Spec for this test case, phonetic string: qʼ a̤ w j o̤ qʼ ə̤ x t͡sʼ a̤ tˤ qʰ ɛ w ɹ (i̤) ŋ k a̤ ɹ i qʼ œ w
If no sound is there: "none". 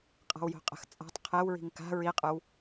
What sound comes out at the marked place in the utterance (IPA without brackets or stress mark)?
i̤